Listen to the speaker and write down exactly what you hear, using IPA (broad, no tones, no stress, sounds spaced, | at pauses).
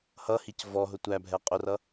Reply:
h ʌ h i c v ɔ ɦ ʊ tʷ æ bʱ ɛ qʼ ʊ r ʌ